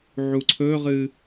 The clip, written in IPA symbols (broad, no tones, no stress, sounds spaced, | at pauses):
ʕ u ǀʰ ɵ ʁ ɨ